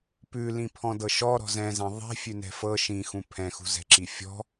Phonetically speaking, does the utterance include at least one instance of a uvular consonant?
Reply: no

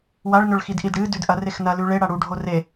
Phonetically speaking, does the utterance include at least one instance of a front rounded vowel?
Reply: no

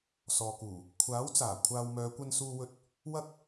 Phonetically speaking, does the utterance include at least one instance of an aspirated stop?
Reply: yes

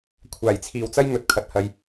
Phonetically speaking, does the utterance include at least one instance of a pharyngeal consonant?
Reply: no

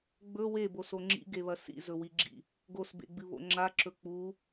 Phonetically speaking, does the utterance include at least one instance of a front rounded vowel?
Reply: no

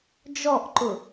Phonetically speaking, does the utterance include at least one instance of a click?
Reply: yes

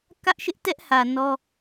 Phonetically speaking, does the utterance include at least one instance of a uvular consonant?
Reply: no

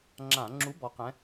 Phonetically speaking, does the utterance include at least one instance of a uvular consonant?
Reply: yes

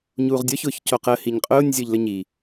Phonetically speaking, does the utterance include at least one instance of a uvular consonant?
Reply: yes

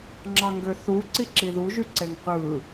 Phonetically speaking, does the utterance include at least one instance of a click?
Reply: yes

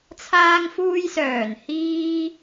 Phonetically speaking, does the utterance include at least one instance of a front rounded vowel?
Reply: yes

